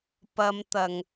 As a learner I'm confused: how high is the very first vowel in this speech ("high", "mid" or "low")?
low